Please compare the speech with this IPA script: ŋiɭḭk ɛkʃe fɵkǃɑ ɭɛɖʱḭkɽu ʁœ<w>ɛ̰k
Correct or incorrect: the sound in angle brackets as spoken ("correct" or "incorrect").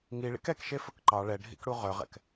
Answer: incorrect